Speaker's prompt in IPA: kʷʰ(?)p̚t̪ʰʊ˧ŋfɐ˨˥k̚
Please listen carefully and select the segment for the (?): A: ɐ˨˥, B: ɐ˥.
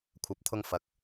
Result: A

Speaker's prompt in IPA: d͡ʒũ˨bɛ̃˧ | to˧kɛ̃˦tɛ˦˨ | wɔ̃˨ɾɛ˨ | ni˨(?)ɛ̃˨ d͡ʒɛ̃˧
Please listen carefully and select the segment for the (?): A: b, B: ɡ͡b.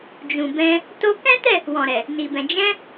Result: A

